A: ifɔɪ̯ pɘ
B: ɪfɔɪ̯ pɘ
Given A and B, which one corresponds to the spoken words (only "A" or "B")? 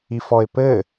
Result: A